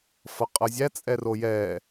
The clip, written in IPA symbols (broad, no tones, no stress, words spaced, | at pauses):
fʌqʼʌzʲæ t͡sʼɛrojɛː